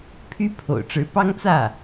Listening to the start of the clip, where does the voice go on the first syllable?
rising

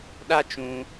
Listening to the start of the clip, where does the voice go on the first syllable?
high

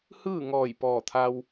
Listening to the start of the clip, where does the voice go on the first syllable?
falling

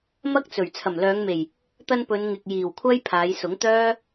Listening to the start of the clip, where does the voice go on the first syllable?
high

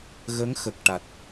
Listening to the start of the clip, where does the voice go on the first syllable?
rising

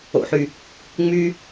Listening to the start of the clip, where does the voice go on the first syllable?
low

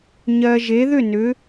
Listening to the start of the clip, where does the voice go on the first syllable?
low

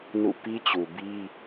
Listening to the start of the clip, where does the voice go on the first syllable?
falling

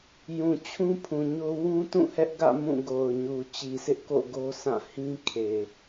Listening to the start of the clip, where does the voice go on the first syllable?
low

